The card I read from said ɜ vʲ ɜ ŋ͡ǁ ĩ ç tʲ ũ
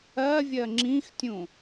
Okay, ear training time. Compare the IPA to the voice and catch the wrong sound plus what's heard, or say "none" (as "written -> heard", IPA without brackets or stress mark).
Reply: ç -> x